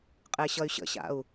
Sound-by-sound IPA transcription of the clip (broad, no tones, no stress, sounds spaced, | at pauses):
qʼ e ɕ ʌ y̯ ɕ ə̰ ɕ a̰ u̯